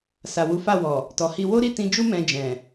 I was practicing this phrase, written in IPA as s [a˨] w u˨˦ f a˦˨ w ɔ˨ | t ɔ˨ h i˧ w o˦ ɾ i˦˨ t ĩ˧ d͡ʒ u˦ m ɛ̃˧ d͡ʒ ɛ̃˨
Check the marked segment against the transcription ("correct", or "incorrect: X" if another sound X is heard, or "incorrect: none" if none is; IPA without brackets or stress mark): correct